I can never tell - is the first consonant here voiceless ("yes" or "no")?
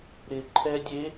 no